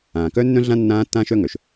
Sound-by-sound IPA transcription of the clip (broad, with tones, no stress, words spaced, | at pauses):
ãː˨kœ˦ nːœ̃˦ɮã˦ nːãː˦tːãː˦ʃœ˦ŋœ˨ʃ